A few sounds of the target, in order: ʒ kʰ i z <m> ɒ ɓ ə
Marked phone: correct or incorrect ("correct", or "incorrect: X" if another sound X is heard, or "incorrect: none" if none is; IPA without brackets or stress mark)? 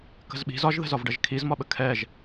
correct